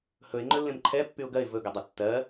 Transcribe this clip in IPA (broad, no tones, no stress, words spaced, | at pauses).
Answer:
hɵɪ̯ ŋ͡ǃɵlːẽmǃʰɛ pːyʊ̯ɡɜɪ̯ vɵ ɡɜdˤə tːɜ